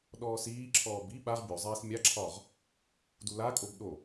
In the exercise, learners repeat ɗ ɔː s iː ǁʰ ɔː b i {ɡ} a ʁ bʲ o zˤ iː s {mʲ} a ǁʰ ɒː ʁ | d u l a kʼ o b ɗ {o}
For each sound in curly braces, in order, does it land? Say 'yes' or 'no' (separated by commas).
no, yes, yes